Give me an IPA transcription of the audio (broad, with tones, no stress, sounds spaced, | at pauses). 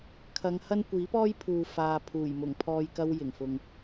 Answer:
kʰ ɐ˨˧ ŋ h ɐ˥ n kʷ iː˨˥ p ɔː˥ j pʰ uː˨ f aː˧ pʰ uː˨˩ j m ʊ˨˩ ŋ pʰ ɔː˧ j k ɐ˥ w j ɪ˨˩ ŋ f ʊ˨ ŋ